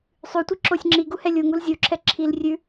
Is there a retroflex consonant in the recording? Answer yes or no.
no